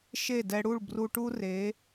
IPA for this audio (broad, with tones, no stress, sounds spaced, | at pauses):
ʃ e˦˨ d ɛ˧ ɽ u˦˨ ɭ b r u˧ ʈ u˦ r e˨˦